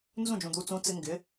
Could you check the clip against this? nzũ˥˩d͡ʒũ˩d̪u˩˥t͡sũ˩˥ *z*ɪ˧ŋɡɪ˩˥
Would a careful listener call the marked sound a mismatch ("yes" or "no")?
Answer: yes